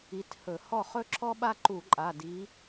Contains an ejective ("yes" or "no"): yes